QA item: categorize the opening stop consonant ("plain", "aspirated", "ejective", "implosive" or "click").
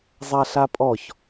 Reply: ejective